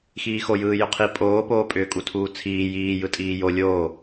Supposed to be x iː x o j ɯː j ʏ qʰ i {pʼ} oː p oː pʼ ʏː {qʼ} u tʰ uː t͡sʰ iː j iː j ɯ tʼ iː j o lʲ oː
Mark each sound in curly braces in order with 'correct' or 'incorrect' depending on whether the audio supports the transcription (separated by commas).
correct, incorrect